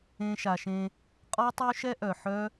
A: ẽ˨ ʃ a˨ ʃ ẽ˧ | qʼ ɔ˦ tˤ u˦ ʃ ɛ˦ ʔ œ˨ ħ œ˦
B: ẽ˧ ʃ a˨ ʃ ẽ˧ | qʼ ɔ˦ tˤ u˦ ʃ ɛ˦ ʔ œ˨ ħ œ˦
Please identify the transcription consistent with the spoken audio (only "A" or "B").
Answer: B